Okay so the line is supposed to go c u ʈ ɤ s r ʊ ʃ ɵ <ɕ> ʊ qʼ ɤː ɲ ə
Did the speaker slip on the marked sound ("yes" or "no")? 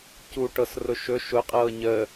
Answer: yes